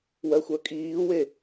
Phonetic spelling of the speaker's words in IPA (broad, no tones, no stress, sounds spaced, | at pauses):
w ɜ xʷ œ kʼ iː w e